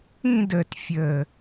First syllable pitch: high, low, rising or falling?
falling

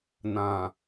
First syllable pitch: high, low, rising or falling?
low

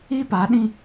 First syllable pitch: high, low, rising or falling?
high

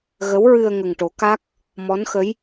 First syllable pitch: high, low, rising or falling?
rising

